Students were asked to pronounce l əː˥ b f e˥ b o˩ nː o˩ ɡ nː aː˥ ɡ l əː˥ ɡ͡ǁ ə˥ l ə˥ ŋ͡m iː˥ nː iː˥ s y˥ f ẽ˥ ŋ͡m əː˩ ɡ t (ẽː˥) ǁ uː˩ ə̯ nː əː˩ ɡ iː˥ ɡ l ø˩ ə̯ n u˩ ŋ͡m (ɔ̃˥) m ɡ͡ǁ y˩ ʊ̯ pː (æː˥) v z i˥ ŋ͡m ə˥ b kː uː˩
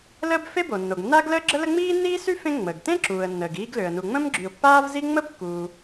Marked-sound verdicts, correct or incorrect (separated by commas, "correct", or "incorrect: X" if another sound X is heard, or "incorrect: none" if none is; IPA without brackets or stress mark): incorrect: ẽ˥, incorrect: ə̃˥, incorrect: aː˥